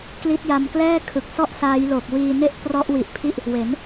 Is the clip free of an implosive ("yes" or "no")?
yes